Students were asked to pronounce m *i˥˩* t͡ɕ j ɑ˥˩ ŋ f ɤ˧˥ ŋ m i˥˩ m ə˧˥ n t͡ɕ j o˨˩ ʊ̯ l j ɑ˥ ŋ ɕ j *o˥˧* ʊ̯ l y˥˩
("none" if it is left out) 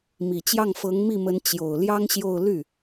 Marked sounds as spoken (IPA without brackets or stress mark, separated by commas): i˨˩, o˥˧